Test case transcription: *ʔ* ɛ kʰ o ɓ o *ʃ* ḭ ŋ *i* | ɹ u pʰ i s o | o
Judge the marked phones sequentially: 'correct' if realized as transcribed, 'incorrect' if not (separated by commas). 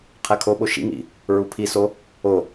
incorrect, correct, incorrect